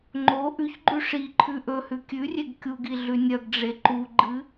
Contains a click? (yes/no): yes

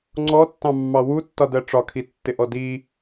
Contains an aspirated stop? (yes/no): yes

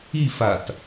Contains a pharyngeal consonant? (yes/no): no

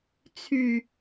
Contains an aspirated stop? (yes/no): yes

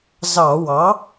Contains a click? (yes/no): no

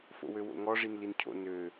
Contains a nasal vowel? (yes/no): no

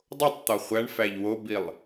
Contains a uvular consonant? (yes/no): yes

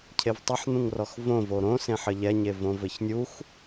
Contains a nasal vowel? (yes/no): yes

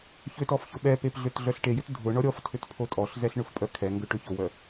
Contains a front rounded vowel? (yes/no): yes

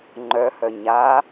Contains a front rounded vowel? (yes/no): yes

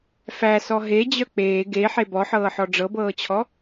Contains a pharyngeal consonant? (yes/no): yes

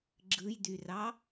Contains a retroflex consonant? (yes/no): no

